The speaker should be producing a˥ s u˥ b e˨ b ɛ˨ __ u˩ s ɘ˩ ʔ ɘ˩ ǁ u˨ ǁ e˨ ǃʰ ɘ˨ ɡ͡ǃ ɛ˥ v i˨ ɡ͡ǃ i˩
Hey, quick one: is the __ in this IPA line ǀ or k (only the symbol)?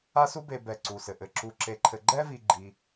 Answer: ǀ